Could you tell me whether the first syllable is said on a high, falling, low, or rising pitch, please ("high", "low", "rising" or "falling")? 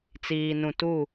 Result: low